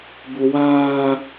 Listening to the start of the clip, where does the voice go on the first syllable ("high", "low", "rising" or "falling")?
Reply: high